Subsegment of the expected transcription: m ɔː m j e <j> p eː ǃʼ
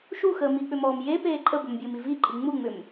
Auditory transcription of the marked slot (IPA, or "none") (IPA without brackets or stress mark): none